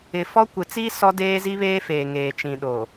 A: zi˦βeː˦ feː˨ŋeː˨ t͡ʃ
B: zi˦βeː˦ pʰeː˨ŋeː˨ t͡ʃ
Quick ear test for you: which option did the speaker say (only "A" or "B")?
A